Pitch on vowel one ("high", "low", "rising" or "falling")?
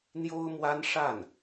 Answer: high